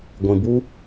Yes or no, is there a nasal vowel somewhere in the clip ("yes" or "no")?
yes